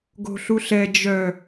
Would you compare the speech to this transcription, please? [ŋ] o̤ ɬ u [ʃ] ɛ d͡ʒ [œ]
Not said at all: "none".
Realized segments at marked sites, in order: ɡ, ɬ, œ

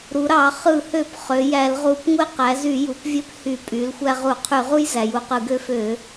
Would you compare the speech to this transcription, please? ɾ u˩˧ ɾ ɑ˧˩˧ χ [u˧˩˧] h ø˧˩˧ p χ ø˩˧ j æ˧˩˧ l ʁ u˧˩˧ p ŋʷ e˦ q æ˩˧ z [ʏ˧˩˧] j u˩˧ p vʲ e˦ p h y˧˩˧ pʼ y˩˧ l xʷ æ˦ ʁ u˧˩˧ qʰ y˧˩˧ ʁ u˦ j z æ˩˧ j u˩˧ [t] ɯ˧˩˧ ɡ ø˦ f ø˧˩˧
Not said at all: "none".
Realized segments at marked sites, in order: ɯ˧˩˧, y˧˩˧, q

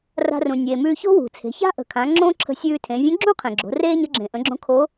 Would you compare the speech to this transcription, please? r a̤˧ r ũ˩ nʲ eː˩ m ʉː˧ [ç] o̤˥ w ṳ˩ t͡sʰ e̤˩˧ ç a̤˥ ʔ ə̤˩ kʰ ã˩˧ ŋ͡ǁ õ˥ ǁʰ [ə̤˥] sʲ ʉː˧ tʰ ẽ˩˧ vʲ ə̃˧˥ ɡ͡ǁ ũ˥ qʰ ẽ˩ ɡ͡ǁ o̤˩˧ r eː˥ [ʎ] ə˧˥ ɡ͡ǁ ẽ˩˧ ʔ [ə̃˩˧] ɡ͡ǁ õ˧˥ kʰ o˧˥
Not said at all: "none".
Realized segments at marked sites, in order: ç, ə̤˧, ɲ, ə̃˩˧

